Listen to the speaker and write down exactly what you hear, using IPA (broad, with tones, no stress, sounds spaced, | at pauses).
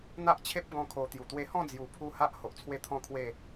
n̪ a˦ ʔ t͡ɕʰ e˦ p̚ ɡ ɔ̃˦ kʰ o˧ t̪ j u˨˩ t̪ w e˧ h ɔ̃˥˧ d͡z j u˨˩ pʰ u˧ h a˦ ʔ h o˨ ʔ t͡sʰ w e˦ t̪ʰ ɔ̃˥˧ kʰ w e˥˧